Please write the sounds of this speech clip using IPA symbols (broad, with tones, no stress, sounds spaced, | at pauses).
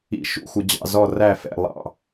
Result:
ḭ˧ ʃ ṵ˥˧ xʷ ə˧ d͡ʑ ɑ̰˥˧ z ɔ˥˧ r æ˥˧ f ɛ̰˥˧ lˠ ɑ̰˥˧